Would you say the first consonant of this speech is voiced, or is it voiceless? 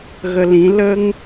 voiced